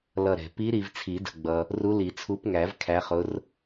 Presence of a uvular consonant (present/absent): present